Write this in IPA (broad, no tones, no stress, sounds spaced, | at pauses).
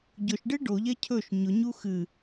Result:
ɟ ʊ ʃ ɖ e ɖ o ʎ ɛ cʰ ɵ ʃ ɲ ʊ ɲ u x ɨ